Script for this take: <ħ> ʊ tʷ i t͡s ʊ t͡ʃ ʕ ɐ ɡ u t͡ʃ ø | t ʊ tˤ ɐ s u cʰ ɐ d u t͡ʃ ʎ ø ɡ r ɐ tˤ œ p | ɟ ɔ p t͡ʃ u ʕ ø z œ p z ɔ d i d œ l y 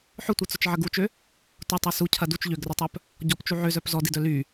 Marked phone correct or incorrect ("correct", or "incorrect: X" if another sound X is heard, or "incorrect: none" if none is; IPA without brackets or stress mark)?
correct